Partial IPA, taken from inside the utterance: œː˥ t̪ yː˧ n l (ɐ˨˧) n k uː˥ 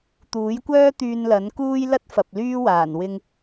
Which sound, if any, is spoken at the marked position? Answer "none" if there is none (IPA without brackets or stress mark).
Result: ɐ˨˥